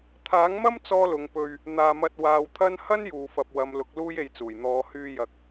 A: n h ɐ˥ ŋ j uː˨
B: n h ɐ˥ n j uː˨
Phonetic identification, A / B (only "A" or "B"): B